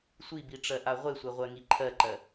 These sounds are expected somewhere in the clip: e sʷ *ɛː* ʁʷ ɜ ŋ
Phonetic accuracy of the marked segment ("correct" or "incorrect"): incorrect